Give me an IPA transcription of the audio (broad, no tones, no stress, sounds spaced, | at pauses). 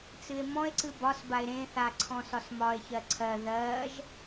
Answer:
t͡s ɨ e̯ m ɔ̃ e̯ ǀ ɨ b ɒ s b a e̯ ɾ ẽ θ a ǀʰ ɔ̃ s ɒ s m ɒ e̯ ç ɜ ǀʰ ɜ ð ɜ ʒ